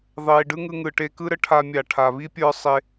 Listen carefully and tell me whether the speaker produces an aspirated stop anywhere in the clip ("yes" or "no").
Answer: yes